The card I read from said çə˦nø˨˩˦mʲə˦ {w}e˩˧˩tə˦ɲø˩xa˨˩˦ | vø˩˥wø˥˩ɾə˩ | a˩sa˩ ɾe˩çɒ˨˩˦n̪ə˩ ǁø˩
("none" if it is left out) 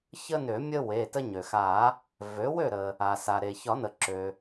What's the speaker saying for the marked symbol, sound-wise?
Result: w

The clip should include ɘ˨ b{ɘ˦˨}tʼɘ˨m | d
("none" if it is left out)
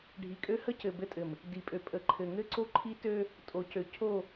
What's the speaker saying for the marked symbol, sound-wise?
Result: ɘ˦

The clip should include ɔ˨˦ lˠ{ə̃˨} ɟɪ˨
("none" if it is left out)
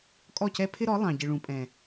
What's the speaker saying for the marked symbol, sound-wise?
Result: ɑ̃˨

